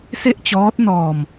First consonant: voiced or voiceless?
voiceless